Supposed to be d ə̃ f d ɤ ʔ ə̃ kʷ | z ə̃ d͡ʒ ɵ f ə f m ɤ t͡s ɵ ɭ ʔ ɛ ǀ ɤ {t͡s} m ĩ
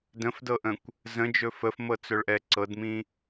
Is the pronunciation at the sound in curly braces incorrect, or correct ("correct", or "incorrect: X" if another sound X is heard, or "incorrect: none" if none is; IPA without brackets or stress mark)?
incorrect: d